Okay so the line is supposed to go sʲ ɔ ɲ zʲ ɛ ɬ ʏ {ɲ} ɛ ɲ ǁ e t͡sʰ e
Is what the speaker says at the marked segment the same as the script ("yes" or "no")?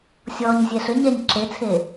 yes